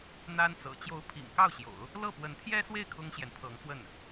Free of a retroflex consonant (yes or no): yes